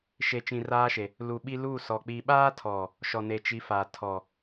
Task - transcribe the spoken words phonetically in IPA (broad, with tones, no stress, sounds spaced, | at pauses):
ʃ e˨ t͡ʃ ĩ˨ r aː˦ ʃ e˨ | l u˨ ɓ i˦ l u˦˨ s ɔ˨ k͡p i˨ ɓ aː˦ tʰ ɔ˨ | ʃ ɔ˨ n e˨ t͡ʃ i˨˦ f aː˨ tʰ ɔ˨